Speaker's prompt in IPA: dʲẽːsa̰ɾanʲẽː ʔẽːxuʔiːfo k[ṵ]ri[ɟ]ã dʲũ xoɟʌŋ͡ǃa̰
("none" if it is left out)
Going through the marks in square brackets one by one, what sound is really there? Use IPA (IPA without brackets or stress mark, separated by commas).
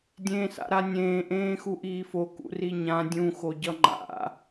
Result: ṵ, ɲ